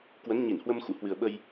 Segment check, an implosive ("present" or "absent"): present